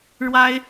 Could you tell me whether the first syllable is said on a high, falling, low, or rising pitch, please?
high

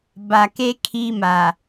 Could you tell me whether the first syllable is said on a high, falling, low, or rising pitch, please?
low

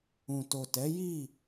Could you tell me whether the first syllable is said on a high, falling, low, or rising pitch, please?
low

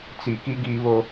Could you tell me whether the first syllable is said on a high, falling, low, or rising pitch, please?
low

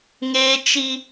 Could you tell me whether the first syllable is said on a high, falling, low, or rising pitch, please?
high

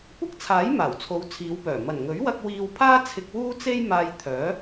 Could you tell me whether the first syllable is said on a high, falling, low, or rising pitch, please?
high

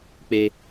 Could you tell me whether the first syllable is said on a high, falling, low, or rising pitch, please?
high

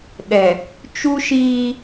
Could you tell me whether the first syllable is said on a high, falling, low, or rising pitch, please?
low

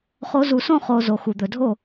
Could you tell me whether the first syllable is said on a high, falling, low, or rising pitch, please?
rising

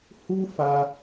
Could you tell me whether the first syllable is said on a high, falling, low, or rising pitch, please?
high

